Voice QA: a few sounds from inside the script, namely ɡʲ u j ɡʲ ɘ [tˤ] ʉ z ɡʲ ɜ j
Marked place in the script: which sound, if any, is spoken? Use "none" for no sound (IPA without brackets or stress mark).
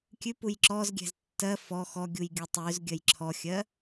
tˤ